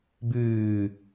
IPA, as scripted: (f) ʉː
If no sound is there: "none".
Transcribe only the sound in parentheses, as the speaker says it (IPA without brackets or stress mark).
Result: b